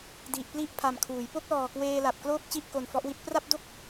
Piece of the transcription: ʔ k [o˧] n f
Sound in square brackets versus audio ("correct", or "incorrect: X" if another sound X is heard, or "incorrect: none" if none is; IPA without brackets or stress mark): correct